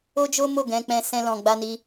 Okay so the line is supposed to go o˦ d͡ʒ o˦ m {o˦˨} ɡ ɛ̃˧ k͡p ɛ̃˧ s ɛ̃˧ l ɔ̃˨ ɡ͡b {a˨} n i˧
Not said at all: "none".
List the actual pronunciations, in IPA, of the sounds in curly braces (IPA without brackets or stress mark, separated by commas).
o˦˨, a˧